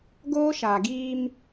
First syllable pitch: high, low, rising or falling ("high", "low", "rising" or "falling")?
high